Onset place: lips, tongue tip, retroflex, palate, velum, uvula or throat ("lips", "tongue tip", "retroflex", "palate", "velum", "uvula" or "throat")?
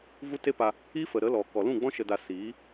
lips